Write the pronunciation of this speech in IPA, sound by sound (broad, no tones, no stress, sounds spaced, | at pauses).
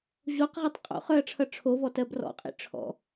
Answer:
ʑ o q ʁ ɛ tˤ qʼ o̰ χ œ ɐ̯ ʈ͡ʂʰ ʌ ʈ͡ʂʰ o v ɔ t ɜ b r ɔ̰ qʼ ḭ ʈ͡ʂʰ ɔ̰